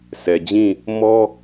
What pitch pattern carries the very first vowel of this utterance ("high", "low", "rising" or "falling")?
low